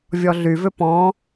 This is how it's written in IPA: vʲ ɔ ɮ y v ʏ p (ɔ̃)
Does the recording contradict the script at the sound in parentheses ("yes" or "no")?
no